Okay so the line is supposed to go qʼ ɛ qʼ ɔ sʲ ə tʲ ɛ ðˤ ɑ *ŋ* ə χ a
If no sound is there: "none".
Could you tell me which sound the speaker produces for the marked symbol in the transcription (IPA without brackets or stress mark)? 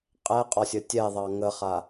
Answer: ŋ